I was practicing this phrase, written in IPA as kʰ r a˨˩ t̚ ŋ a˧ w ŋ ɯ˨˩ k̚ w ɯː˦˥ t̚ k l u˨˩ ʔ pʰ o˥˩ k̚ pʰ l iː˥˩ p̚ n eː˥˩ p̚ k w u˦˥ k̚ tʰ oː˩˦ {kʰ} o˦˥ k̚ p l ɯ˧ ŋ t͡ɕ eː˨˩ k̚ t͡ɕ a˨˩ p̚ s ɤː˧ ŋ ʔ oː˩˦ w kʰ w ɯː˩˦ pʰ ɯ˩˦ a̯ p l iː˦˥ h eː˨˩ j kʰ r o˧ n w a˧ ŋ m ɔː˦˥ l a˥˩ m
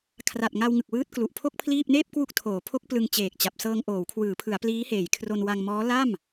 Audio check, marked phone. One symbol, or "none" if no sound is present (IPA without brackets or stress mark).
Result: pʰ